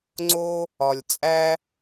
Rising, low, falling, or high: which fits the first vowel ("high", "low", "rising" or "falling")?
high